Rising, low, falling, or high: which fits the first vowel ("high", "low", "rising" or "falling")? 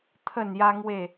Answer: falling